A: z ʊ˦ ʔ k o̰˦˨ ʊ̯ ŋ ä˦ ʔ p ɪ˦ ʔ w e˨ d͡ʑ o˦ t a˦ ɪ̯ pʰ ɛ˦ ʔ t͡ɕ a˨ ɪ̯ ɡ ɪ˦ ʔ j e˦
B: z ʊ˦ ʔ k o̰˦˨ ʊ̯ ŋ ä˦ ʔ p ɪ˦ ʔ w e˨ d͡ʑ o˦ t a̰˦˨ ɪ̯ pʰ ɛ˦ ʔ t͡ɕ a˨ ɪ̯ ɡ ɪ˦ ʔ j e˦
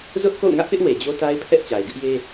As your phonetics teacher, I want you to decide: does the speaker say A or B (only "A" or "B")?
A